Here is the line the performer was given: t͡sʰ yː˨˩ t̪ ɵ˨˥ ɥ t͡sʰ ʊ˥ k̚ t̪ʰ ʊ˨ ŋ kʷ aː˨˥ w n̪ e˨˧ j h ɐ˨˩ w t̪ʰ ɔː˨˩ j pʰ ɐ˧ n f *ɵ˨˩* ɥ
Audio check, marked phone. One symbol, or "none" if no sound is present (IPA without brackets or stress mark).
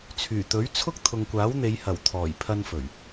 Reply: ɵ˨˩